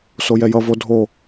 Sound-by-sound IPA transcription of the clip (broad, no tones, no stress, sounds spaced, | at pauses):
s o j ɛ j ʌ v o dʱ o